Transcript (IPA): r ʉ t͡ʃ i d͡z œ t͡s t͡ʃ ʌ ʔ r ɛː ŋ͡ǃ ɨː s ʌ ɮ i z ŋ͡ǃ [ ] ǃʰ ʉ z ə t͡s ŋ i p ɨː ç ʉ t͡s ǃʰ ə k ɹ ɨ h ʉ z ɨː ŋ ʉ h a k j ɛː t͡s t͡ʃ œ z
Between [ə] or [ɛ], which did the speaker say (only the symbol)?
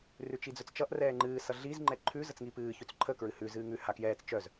ɛ